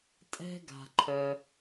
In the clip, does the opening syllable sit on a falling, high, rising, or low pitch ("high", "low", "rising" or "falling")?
high